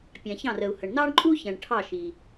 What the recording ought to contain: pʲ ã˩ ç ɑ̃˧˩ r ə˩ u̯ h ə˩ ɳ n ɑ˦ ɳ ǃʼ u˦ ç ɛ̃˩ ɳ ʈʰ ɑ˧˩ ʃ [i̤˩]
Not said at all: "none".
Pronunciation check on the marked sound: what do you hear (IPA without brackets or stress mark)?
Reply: i˩